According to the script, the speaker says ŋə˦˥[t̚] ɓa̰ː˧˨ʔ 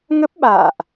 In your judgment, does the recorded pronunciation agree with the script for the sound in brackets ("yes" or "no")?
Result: no